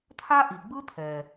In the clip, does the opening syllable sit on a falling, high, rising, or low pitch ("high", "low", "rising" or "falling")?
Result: high